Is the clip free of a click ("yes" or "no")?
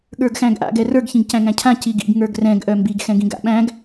yes